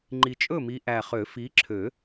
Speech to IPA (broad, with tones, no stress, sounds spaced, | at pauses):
ŋ͡ǃ i˨˩ t͡ʃʼ ɵ˥˨ m i˨˦ ʔ æ˨˩ χ ø˨˩˦ f i˨˦ ǁʰ ø˨˩˦